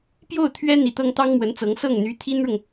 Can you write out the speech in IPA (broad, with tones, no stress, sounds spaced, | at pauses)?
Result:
p j o˥˩ ʊ̯ t̪ʰ ɥ ɛ˥ n̪ i˧˥ t̪ ɤ˥ ŋ t̪ ɑ˥ ŋ m w ə˧˥ n t͡s ɤ˧˥ ŋ s ɤ˥˩ ŋ n̪ y˧˥ t̪ʰ i˥ n ɻ ʊ˨ ŋ